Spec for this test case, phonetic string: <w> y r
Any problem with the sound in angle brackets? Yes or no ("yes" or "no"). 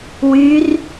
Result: no